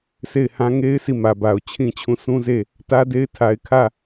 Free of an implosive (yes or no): yes